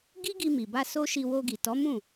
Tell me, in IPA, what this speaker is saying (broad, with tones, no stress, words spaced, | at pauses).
ɡi˦ɡi˧mi˨ba˧ so˦ʃi˧ wo˧ɡi˨ tɔ˨˦mũ˦˨